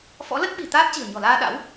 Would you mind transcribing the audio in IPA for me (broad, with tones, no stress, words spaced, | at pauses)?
fɔ̰˧˥ lə˦˥t̚ ɓi̤˨˩ t̪aː˦˥t̚t͡ɕi̤˨˩ə̯ɲɔ̤˨˩laː˧ ɗa̰˧˥w